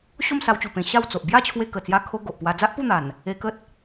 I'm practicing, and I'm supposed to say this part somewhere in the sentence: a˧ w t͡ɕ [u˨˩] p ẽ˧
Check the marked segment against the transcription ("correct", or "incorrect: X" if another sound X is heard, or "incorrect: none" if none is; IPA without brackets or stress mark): correct